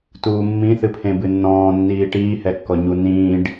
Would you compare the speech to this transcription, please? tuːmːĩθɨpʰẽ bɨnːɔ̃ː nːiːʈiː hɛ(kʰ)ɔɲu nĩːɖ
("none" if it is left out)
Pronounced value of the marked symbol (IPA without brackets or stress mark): kː